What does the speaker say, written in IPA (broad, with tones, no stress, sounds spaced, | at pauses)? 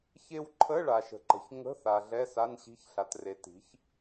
ç e˥ w ǃʰ ə˧˥˧ ɭ a˨ ʃ ə̤˨ ǃ ə̤˨ ç ŋ ə̤˧˥˧ θ a˨ ɮ ɛ˧˥˧ s a˧˥˧ n ɕ i̤˧˥˧ ç ɬ a˨ t r e˩˥ t i̤˩˥ ç